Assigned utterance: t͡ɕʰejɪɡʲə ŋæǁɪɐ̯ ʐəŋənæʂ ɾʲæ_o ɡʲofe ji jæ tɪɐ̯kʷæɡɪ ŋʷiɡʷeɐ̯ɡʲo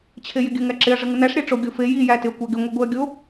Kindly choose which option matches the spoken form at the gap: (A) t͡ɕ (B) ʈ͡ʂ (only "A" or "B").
B